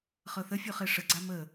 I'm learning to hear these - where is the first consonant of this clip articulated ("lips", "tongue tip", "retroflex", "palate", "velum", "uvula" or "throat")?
uvula